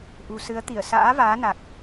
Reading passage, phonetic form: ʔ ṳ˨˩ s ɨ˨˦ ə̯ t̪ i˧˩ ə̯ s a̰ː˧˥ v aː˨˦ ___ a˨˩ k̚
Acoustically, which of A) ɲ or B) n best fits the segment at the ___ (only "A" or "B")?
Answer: B